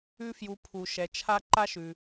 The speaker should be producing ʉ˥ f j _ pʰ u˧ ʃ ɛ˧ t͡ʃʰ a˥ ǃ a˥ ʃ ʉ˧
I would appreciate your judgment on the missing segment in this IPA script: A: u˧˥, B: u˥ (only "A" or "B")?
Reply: A